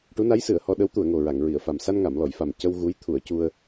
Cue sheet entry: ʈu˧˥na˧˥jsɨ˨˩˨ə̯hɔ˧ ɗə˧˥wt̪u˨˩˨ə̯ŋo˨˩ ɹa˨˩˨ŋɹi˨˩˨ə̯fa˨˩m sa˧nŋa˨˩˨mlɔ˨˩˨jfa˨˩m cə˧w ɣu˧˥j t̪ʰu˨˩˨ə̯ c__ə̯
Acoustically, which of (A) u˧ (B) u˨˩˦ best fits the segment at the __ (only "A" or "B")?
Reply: A